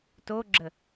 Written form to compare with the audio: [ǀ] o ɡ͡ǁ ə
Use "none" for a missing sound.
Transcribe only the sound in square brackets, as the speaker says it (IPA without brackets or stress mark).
t